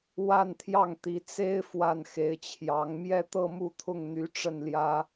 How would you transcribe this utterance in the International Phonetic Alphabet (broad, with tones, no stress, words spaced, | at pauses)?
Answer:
wa˥˧nt̪ʰjɑ˥˩ŋt̪i˧˥ t͡se˥ɪ̯ fwa˥˩nxe˧˥ɪ̯t͡ɕʰjɑ˧˥ŋ mjɛ˥˧t̪ɤ˥˧ mu˥˧t̪ʰʊ˥˩ŋ n̪y˧˥ ʈ͡ʂə˥˩nljä˥